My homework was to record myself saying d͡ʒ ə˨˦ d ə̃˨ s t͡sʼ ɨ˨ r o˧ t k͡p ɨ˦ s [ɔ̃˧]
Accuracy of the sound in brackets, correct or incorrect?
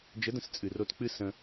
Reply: incorrect